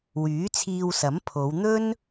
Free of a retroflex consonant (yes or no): yes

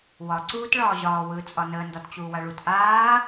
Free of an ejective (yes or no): no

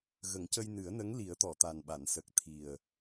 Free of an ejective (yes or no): yes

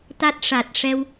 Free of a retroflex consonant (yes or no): no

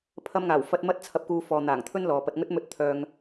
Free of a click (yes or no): yes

